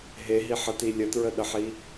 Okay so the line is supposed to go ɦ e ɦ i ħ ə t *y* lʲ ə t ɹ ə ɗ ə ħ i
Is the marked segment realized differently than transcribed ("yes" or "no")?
yes